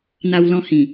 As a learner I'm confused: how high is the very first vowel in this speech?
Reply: low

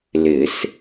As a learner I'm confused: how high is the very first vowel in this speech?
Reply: high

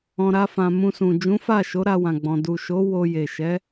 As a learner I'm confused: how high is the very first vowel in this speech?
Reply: mid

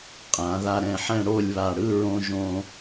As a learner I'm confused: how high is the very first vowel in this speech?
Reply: low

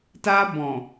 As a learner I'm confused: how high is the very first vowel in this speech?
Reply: low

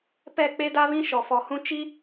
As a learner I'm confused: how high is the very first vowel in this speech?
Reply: mid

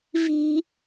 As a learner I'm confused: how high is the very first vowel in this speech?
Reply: high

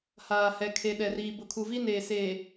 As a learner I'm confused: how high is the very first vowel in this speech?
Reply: low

